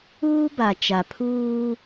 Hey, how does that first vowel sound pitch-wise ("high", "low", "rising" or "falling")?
high